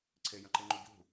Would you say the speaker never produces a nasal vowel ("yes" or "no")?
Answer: no